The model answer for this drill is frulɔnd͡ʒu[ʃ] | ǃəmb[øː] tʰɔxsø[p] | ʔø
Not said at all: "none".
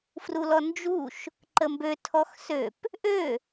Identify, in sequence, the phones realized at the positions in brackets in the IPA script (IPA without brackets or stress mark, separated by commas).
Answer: ʃ, ø, p